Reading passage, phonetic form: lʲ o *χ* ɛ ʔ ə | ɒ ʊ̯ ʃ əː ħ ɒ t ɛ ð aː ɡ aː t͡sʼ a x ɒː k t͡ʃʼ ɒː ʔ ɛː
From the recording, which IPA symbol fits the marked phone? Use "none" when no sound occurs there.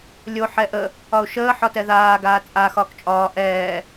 ħ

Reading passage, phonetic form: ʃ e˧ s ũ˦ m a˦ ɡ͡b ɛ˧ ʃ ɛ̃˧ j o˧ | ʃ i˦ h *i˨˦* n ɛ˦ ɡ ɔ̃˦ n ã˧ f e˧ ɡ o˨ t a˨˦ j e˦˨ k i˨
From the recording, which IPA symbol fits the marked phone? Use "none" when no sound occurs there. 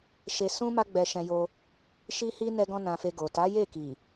i˦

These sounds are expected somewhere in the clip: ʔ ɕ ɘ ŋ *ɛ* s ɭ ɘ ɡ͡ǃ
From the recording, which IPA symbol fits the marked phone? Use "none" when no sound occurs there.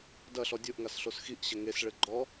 e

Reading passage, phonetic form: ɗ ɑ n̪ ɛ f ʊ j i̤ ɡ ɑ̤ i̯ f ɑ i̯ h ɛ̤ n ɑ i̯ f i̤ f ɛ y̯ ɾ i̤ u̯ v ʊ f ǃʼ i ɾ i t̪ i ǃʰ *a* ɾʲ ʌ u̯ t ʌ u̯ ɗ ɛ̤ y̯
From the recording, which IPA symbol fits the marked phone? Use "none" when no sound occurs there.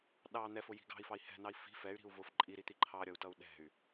ɑ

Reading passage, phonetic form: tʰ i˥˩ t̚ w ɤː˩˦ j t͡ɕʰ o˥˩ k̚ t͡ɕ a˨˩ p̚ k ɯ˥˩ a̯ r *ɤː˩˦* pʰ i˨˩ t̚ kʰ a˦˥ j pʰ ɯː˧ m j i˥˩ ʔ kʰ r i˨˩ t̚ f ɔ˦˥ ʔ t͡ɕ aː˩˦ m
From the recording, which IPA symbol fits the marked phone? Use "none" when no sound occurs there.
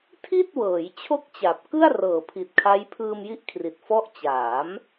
ɤː˩˦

